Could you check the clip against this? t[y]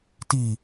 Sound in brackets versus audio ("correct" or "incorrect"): incorrect